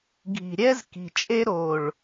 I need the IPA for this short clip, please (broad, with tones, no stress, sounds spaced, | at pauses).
ɡʱ i̤˨ ɾʲ ɛ˦ z k i̤˨ t͡ʃʼ e˦ ɾ o˨ ɭ